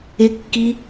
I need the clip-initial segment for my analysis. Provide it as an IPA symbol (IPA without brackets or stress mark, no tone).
ɪ